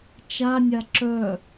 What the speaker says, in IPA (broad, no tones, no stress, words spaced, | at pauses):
t͡ʃanʲa ǁœ